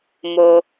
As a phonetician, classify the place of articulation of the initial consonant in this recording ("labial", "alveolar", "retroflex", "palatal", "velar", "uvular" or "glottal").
labial